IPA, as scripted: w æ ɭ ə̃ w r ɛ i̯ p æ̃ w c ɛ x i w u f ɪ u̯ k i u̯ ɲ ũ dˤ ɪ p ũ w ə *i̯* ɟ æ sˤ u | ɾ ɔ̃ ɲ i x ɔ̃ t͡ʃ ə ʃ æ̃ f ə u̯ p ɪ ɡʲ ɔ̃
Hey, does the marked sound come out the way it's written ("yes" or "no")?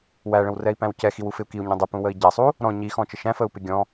yes